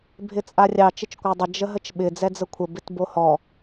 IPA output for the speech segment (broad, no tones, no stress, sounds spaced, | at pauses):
bʱ ɪ t͡sʼ a rʲ ɑ t͡ʃ ɪ t͡ʃ kʷ a dˤ ə d͡ʒ ə ɦ ə t͡ʃ ɓ ɪ d͡z ɛ d͡z ə kʷʰ ə b ɪ t b o h ɔ